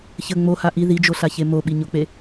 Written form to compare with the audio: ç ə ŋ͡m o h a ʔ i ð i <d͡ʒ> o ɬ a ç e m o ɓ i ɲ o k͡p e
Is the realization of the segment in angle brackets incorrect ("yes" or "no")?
no